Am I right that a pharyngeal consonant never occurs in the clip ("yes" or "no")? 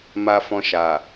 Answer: yes